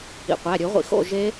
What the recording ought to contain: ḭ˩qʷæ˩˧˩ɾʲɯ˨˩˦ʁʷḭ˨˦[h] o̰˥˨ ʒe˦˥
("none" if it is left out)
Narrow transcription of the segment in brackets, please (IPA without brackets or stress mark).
x